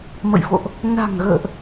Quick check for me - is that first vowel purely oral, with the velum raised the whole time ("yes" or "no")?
yes